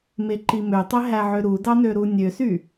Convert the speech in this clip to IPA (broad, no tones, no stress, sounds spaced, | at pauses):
m e ǃ i m ø tˤ e ɦ æ ʕ ø ɾ u d ɑ n ø ɾ u nʲ ø s y